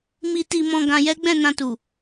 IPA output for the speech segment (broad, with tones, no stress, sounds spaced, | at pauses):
m i˧ t i˧ m ɔ̃˧ ɡ ã˧ j ɛ˦ ɡ͡b ɛ̃˦˨ n ã˧ t u˨